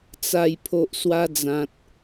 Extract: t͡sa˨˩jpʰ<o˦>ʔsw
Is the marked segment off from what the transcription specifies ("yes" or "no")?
yes